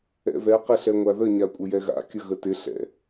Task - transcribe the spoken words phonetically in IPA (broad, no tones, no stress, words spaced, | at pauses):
ɛ̰vɛ qɪɬɛŋʷaðə ɲakʷʼəjɛɣa̰ kʲəɣətɪ ɬɛ̰